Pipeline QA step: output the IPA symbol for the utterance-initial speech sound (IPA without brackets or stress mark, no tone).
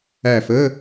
æ